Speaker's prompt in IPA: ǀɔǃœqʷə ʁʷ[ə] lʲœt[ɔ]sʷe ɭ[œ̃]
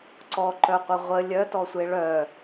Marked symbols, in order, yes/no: yes, yes, no

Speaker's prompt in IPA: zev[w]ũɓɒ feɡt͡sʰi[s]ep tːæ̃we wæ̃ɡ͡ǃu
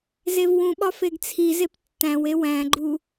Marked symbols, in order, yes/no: yes, no

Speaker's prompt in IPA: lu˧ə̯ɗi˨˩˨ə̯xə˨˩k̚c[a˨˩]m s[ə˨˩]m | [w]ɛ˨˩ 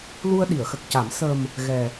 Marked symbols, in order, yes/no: no, yes, no

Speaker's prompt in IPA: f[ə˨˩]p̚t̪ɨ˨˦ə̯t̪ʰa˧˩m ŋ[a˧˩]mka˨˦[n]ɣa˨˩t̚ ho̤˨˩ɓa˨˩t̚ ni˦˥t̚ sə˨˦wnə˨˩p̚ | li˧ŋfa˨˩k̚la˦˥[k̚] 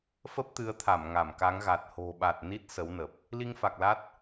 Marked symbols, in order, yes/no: no, yes, no, no

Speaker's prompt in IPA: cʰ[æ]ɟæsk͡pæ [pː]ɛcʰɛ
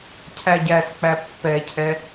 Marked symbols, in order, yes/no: yes, yes

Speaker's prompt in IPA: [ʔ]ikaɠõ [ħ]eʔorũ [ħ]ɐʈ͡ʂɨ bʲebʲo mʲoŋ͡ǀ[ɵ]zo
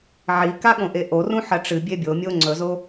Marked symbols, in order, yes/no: no, no, yes, yes

